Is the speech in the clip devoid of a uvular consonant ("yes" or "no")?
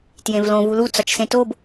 yes